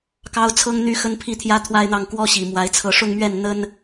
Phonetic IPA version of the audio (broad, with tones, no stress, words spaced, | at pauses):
kɑ˥ʊ̯t͡sʰɤ˥ŋn̪y˥xə˥n pʰi˥˩t̪ʰjä˥t̪ʰwa˥˧ɪ̯n̪ɑ˥˩ŋ kwɔ˥ɕi˨˩mwa˧˥ɪ̯ t͡sʰɤ˥˧ ʂʊ˥˧ŋmɥɛ˥˩n n̪ə˥n